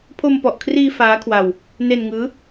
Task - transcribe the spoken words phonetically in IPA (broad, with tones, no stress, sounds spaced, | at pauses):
pʰ o˧ m p ɔ˨˩ ʔ kʰ r iː˧ f aː˦˥ kʰ w a˧ w | n e˧ n ŋ ɯː˦˥